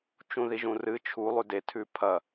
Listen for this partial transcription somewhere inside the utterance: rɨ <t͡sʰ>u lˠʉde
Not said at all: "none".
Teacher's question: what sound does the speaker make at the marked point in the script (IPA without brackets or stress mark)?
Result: t͡ʃʰ